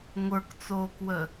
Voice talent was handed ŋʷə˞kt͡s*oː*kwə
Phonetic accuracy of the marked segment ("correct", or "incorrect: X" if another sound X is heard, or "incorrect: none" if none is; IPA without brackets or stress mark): correct